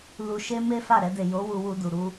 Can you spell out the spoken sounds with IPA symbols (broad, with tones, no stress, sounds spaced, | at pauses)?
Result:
l u˧ ʃ e˦ m e˦ f a˦˨ ɾ ɛ˧ d e˨ j o˨˦ w u˧ w u˧ d u˨ ɾ u˧